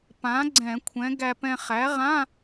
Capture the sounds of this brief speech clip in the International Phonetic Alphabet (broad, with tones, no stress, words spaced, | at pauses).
pã˩˥ ɡ͡ǀɛ̃˧˩˧kʷʰɛ̃˩˥ ɡæ˧pɛ̃˧ χæ˩˥ʁã˧˥˧